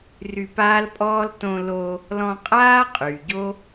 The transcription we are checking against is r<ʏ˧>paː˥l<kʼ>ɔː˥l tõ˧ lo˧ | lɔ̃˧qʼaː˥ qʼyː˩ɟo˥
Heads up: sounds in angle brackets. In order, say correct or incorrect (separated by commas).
incorrect, incorrect